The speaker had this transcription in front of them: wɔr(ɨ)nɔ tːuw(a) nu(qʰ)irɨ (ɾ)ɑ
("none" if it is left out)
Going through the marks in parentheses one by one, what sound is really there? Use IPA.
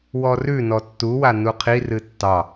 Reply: ʉ, a, qʰ, tː

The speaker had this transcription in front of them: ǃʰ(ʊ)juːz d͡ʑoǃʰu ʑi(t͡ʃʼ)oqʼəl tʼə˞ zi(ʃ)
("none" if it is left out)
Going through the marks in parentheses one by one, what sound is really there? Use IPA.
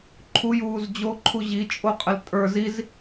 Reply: u, t͡ʃʼ, z

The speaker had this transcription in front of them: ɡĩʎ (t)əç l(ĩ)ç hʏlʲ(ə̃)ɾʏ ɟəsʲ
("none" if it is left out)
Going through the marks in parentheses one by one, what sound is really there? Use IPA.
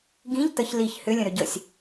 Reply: t, i, ə̃

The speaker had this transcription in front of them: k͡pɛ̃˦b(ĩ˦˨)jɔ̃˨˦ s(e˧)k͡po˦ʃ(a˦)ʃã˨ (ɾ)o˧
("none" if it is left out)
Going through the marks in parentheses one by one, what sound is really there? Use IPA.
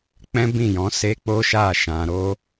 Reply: ĩ˦˨, e˦, a˦˨, ɾ

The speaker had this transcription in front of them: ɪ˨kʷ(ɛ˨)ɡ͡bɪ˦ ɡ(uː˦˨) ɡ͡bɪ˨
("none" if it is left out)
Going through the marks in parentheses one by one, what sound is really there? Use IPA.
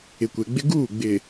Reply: e˨, uː˦˨

